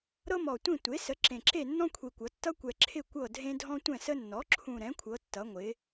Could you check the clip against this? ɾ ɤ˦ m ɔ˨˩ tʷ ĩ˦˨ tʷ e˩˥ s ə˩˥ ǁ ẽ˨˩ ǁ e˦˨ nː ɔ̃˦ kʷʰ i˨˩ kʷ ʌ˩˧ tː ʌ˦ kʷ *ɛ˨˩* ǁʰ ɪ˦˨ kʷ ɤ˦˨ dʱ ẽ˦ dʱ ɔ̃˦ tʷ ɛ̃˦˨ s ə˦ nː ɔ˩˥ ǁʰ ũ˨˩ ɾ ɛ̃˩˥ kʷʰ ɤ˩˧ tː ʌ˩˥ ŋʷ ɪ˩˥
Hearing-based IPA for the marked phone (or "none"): ɛ˨˩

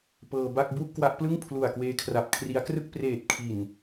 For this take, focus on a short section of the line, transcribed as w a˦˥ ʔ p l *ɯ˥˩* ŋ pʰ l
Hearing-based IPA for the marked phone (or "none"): ɯ˥˩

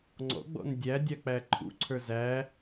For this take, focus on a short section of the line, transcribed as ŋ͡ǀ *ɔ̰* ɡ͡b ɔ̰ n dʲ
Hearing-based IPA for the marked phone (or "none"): ɔ̰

